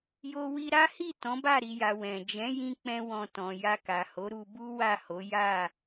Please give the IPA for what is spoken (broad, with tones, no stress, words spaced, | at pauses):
jo˧wi˧ɾa˦hi˦˨ tɔ̃˨˦ba˦˨ɾi˨ja˨ wɛ̃˨ d͡ʒɛ̃˨˦jĩ˧ k͡pɛ̃˦wɔ̃˧tɔ̃˨ ja˧ka˨ ho˨˦ɾu˧bu˦ wa˦˨ho˨˦ ja˦˨